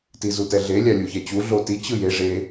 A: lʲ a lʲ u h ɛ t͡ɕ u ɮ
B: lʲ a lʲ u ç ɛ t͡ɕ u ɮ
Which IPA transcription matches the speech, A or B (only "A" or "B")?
B